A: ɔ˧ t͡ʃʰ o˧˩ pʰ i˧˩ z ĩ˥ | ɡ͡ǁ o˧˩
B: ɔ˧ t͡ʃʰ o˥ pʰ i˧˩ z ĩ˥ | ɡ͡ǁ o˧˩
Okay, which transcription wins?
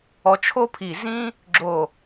B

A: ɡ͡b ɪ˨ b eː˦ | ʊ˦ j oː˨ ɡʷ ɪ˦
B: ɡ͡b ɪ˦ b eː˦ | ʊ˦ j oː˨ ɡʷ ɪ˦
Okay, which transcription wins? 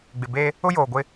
A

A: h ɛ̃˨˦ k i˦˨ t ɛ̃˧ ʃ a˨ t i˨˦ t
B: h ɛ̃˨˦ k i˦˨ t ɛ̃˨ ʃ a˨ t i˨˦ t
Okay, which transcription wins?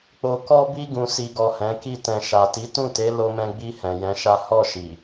A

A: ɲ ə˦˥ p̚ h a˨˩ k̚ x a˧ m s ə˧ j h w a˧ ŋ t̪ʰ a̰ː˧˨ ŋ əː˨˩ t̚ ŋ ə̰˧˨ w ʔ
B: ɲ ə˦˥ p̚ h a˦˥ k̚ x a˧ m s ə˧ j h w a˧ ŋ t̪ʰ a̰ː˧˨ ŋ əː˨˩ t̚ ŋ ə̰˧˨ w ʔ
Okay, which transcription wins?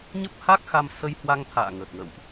B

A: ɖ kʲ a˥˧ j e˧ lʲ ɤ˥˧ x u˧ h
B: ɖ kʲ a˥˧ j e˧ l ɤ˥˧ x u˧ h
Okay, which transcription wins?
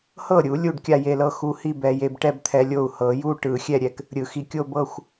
B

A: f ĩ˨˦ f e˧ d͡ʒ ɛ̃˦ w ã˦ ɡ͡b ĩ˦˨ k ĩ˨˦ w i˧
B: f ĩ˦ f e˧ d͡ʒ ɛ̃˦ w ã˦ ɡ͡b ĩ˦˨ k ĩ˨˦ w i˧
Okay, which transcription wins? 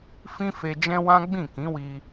B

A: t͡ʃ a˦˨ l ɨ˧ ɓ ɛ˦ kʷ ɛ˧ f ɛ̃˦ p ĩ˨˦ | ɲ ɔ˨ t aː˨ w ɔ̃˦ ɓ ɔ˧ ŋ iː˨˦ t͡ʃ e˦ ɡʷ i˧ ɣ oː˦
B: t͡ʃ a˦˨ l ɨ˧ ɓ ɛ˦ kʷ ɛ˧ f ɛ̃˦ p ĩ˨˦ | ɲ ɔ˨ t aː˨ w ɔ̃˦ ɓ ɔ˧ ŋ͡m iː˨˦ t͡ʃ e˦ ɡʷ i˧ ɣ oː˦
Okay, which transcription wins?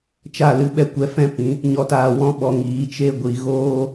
A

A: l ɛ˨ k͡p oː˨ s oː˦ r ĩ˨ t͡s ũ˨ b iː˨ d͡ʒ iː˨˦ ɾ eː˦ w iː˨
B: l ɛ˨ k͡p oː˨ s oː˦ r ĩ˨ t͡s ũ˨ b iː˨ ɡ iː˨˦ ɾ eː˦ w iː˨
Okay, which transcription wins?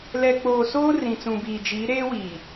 A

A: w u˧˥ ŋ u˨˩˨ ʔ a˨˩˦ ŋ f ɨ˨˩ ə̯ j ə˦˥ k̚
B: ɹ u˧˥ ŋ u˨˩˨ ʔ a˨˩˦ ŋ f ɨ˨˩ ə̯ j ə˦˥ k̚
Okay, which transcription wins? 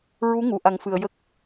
B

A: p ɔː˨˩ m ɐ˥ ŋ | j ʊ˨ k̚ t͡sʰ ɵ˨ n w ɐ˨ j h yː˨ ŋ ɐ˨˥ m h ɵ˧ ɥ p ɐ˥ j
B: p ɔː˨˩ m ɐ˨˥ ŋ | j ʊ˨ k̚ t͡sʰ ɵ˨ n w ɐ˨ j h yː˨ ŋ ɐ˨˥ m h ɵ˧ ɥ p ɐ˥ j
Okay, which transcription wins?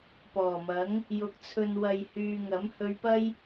B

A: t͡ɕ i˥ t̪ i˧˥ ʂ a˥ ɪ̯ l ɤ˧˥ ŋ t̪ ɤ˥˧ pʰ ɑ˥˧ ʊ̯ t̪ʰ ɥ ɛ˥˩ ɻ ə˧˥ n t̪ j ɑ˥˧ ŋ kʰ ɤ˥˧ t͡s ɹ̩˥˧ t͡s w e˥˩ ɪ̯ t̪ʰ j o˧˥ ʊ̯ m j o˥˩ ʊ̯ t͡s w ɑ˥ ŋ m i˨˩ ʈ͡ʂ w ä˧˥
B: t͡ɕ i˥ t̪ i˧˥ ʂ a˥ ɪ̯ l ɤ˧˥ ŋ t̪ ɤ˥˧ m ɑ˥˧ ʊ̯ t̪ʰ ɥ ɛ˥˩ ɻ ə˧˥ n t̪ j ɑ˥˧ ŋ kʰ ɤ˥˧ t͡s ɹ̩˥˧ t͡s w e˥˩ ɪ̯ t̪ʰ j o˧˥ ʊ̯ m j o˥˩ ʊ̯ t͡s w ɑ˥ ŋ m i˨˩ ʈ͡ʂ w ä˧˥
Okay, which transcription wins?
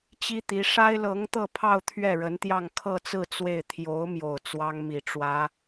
A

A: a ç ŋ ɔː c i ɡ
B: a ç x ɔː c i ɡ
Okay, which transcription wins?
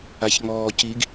A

